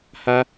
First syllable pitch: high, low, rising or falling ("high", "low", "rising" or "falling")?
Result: high